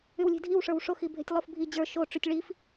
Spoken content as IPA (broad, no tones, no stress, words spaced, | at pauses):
ywlʲe̤dʱiwʂə˞w ʂoxibʱe̤tʲlˠof bʱi d͡ʑə˞ ʃoʈ͡ʂytʲ ɭif